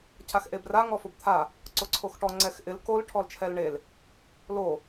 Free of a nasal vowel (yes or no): yes